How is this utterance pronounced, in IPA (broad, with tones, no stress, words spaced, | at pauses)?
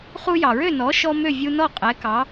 χu˧jɑ˩ɹø˥˩ nɔ˩˥ʃɔ˧ mø˥˩vʲu˧nɔ˥˩ qʼɛ˩˥kɑ˩˥